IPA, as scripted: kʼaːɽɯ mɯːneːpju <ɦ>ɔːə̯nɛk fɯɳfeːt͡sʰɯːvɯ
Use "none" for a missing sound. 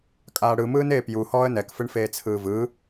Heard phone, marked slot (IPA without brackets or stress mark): h